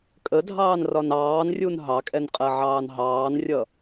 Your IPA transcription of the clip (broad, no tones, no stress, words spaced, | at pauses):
kʼədʱɑːnrɒn ɑːnrʲun ɦɑkʼɛnqʼɜʕɑːn ɦɑːnrʲʌ